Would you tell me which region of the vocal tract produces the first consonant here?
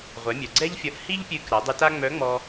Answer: uvula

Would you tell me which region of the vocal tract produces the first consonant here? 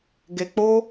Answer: velum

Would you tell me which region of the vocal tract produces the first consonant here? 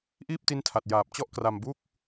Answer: throat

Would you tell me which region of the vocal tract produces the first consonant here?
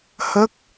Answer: throat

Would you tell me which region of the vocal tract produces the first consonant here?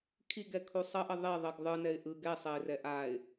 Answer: velum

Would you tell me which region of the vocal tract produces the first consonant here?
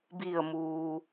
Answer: lips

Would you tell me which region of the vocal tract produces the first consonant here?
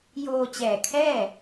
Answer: palate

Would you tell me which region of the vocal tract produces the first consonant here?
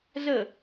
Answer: tongue tip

